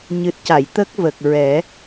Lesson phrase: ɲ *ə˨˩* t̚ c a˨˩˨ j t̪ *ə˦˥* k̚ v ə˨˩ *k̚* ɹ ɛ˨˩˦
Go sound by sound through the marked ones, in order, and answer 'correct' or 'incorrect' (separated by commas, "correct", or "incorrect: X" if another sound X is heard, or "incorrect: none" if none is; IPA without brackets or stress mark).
incorrect: ɨ˨˩, correct, correct